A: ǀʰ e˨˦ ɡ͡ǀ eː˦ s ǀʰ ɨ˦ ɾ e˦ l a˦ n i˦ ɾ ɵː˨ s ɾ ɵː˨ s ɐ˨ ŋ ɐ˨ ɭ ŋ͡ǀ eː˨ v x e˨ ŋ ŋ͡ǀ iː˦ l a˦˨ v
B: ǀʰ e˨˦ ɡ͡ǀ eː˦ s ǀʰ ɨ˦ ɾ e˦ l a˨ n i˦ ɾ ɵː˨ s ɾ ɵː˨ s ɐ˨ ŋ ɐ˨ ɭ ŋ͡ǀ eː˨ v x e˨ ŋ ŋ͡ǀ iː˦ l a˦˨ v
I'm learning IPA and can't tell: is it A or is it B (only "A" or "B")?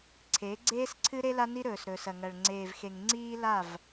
A